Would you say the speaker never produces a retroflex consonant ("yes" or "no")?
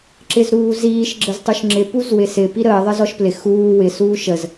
yes